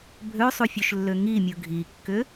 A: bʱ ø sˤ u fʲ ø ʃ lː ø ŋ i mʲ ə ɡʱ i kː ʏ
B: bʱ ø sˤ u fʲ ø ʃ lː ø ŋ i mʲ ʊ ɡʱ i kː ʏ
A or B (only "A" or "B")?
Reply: B